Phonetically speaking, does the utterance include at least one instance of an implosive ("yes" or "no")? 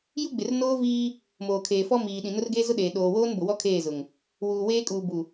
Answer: yes